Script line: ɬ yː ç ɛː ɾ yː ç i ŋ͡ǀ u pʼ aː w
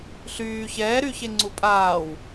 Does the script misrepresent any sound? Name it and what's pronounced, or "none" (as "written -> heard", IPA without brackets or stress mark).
i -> e